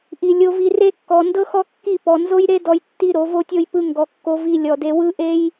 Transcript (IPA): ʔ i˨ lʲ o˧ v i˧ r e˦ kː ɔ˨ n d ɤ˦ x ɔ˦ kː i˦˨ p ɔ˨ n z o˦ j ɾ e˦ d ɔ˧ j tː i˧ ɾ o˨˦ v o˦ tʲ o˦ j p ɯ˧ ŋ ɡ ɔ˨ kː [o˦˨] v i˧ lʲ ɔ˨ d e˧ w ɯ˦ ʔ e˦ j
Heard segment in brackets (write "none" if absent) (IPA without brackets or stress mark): o˧